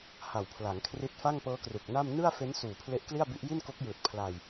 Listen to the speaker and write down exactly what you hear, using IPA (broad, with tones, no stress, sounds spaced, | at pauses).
h a˨˩ w pʰ l a˩˦ ŋ kʰ r i˦˥ t̚ f a˥˩ ŋ p ɤː˦˥ k r u˨˩ k̚ n a˥˩ m n ɯ˥˩ a̯ f e˦˥ n s uː˨˩ pʰ l e˦˥ ʔ k l i˥˩ a̯ b i˦˥ ʔ j i˥˩ n k o˦˥ k̚ j ɯː˨˩ t̚ pʰ l a˧ j